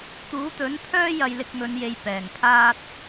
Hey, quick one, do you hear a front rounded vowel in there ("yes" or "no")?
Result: yes